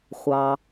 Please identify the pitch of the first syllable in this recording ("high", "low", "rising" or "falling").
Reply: low